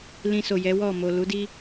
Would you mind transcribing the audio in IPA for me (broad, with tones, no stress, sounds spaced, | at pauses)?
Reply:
l ĩ˧ s o˨ j ɛ˨˦ w ɔ˦˨ m o˨ l u˨˦ d i˦